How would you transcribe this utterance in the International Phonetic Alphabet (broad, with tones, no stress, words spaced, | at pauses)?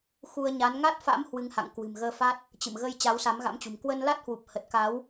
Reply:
xu˧ə̯ ɲa˨˦n ŋa˦˥t̚fa̰˧˥m hwɨ˨˦ŋha̰˧˨ŋkwɨ̤˨˩m ɣəː˧fa˦˥t̚ | t͡ɕɨ̰˧˨m ɣə˧j t͡ɕa˨˦wsa˨˦mɣa̰˧˥mt͡ɕṳ˨˩m kwə˧nla˦˥t̚hwu˨˩p̚ hə˨˩t̚ka˨˦w